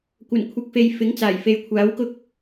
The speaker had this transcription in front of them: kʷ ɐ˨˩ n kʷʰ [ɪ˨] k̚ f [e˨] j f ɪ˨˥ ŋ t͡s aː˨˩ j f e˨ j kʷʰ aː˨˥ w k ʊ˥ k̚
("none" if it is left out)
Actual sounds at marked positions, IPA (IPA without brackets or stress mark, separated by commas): ɪ˨, e˨